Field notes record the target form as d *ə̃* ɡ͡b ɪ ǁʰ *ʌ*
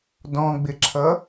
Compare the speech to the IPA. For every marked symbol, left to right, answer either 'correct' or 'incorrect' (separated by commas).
incorrect, correct